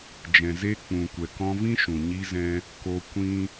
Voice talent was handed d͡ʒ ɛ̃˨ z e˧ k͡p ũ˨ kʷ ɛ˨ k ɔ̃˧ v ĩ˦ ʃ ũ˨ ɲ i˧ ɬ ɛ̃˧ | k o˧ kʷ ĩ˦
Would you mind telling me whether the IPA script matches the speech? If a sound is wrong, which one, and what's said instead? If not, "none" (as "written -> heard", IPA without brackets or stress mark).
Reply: ɬ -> z